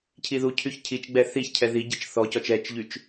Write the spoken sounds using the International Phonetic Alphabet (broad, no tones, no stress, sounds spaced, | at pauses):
cʰ i ð u cʰ y ç cʰ i t͡ʃ ɡ͡b ɛ θ i ç cʰ ɛ ð i ɟ i t͡ʃ θ ɔ c ɔ t͡ʃ ɛ t͡ʃ ʎ y t͡ʃ